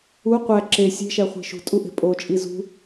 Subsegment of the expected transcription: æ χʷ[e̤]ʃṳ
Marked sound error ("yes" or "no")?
no